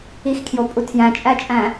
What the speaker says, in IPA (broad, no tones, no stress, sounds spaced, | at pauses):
i x kʰ j o pʼ u tʰ j æ̃ t͡ʃʼ æ t͡ʃʼ æ̃